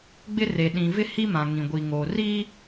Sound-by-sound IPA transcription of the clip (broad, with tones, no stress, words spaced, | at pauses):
ɡ͡bɪ˦re˨ ɗĩ˨vɪ˦ hi˦mã˨ ŋĩ˨ɡʷi˨ŋoː˨ riː˦